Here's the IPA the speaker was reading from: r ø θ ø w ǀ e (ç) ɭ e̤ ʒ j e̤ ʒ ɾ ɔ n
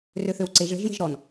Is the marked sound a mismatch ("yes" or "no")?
yes